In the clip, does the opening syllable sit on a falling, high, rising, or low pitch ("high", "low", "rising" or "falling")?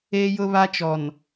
high